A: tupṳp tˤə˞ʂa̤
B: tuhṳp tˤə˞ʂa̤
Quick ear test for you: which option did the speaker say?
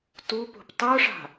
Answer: A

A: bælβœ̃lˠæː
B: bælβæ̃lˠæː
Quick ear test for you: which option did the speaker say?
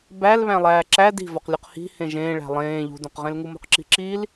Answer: B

